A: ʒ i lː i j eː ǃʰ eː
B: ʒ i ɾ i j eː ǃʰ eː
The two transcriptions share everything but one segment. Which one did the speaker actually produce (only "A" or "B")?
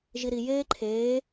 B